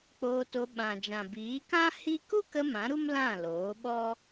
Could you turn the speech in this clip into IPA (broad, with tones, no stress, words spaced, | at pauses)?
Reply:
k͡poː˧to˧ ɓã˨d͡ʒã˨biː˨˦ kã˦ hi˦ ku˦kə˧ mã˨˦ɾu˦m lã˦˨loː˨˦ ɓɔ˦